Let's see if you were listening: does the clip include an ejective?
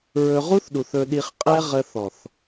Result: yes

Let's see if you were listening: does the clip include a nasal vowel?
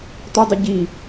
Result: no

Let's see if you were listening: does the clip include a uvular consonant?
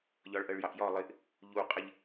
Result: yes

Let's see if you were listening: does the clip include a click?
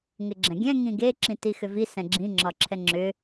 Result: yes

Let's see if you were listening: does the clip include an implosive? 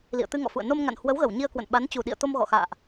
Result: yes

